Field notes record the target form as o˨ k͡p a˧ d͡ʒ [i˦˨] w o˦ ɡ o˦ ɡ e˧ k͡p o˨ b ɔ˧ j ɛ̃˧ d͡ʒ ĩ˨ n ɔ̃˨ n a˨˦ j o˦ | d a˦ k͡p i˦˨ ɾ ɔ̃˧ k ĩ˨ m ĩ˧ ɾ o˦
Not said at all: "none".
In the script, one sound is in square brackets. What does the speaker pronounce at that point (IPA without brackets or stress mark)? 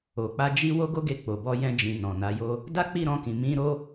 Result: i˦